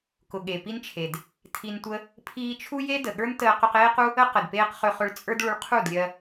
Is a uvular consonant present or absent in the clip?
present